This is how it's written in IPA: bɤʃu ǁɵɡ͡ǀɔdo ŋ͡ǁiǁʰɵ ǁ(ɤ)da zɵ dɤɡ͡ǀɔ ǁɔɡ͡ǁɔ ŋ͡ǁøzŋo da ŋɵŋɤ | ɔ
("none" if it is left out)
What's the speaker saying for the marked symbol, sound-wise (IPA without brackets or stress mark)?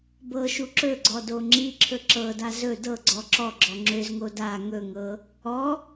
ɤ